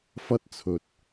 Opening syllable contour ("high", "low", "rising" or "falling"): high